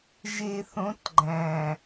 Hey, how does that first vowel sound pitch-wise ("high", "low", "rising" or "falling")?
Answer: low